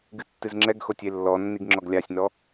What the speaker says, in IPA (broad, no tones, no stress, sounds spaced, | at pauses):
ɡ ɨ tː ɨ z ŋ͡ǁ ɛ ɡ x o tʲ e lː ɔ nː i ɡ ŋ͡ǁ ɔ ɡ lʲ a sʲ n ɔ